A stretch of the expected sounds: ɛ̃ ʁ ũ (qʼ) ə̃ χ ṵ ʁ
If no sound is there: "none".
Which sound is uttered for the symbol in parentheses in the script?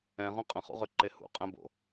qʼ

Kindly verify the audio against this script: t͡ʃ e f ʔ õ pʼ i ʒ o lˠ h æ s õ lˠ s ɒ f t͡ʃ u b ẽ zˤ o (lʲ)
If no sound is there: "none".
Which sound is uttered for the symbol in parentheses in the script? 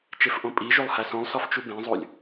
lʲ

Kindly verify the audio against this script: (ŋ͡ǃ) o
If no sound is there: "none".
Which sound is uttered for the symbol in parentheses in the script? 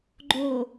ɡ͡ǃ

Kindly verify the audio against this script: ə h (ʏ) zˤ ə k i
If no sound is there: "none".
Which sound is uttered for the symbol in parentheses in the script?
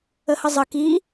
ə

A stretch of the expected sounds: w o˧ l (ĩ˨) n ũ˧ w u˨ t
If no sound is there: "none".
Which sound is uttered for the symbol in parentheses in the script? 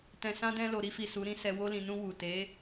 ĩ˨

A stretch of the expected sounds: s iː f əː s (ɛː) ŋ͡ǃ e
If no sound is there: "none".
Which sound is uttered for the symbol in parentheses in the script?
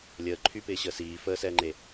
ɛː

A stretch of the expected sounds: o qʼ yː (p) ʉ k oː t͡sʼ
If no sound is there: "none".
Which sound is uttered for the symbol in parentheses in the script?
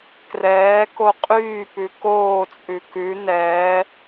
p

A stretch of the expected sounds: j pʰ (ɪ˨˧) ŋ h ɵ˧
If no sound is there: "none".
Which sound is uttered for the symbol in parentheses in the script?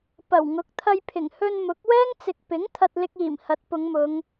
ɪ˨˩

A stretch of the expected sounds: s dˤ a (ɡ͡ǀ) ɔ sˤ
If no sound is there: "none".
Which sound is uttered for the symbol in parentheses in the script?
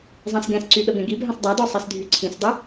d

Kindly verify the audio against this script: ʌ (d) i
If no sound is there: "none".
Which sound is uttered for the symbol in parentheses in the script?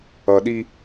ɗ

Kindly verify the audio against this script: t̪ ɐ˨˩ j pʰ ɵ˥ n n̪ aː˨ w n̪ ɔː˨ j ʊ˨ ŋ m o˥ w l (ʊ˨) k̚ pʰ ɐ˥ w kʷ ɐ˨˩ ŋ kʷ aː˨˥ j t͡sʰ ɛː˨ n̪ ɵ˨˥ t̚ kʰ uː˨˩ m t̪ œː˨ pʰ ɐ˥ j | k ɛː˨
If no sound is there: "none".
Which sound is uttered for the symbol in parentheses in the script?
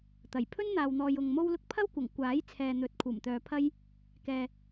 ʊ˥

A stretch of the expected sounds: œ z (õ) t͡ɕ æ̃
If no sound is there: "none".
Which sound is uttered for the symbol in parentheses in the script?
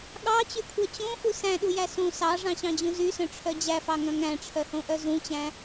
ũ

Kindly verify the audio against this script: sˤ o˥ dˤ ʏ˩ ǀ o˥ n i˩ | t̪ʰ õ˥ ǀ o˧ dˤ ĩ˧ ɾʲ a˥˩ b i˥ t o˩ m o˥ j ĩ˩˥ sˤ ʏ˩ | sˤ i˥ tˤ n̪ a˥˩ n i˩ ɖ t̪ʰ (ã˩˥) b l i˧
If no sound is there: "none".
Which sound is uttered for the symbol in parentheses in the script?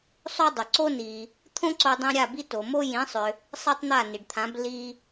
ã˩˥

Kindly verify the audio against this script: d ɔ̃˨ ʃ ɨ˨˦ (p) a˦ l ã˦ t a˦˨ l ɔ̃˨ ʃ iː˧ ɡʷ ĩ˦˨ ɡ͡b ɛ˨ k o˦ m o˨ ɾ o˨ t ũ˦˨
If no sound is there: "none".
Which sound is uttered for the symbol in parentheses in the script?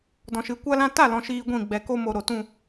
kʷ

